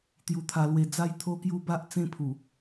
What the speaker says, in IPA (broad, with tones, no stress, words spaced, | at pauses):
t̪ju˧t̪ʰa˧lwe˧ d͡za˥˧jt̪ʰo˦kju˦ba˦ʔ t͡sẽ˥˧pʰu˨˩